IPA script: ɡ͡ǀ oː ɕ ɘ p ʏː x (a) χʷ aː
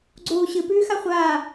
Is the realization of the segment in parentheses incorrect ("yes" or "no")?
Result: no